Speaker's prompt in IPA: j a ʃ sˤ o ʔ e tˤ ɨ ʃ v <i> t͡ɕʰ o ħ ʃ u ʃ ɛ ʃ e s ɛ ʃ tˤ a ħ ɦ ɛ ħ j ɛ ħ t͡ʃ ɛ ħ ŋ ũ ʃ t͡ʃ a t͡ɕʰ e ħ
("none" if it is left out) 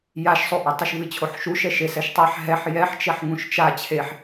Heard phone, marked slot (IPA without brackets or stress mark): ɨ